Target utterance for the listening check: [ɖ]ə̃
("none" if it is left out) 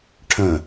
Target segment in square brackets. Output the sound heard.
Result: ʈʰ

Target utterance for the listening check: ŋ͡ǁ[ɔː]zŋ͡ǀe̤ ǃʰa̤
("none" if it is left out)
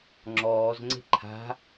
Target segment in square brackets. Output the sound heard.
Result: ɔː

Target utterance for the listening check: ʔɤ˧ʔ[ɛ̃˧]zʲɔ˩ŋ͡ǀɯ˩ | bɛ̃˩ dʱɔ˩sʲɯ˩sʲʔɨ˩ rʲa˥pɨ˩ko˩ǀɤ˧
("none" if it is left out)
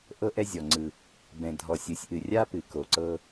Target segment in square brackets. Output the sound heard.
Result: ɛ˧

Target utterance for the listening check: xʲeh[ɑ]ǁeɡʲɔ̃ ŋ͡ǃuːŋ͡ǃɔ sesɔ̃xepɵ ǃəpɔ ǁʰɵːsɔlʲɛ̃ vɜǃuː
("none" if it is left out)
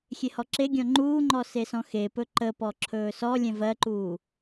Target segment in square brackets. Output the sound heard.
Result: ɔ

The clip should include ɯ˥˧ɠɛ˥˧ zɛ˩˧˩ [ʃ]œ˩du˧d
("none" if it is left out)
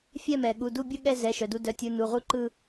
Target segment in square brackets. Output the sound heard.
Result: ʃ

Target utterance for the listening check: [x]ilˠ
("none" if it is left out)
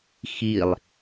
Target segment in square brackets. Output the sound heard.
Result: x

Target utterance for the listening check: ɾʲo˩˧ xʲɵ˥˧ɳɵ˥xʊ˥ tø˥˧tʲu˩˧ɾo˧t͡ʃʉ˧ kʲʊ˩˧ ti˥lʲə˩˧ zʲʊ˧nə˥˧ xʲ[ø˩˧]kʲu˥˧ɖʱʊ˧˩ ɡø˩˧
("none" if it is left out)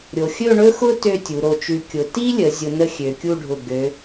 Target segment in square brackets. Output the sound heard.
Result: ø˩˧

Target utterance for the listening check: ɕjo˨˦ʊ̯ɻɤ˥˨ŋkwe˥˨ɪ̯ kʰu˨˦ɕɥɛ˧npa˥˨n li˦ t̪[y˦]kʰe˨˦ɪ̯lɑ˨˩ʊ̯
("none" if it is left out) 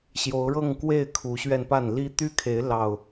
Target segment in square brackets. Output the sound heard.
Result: y˦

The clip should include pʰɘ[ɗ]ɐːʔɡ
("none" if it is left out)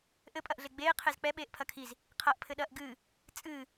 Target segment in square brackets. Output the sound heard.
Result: ɗ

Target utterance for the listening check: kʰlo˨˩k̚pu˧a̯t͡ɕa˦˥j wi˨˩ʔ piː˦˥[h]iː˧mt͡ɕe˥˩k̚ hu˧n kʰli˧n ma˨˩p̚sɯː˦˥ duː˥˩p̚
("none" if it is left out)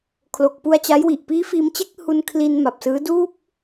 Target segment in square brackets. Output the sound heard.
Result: f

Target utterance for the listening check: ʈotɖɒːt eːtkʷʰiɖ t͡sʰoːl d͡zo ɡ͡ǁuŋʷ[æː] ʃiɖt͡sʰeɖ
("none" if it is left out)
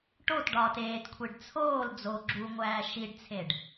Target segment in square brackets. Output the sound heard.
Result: æː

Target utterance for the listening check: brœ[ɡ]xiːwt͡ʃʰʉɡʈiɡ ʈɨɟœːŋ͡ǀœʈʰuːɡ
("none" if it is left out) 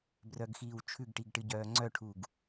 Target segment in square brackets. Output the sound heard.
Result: ɡ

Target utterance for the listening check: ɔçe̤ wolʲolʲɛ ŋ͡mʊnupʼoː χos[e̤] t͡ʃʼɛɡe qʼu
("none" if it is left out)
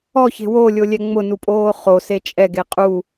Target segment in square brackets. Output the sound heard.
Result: e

